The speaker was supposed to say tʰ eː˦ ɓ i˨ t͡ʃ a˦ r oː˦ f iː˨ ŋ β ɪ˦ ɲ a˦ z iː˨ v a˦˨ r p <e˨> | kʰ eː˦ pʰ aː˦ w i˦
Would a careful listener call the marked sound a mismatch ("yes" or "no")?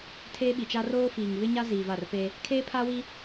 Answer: yes